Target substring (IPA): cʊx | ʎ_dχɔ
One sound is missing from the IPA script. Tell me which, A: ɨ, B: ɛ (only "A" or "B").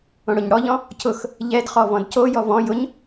B